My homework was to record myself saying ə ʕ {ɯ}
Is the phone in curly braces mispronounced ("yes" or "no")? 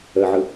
no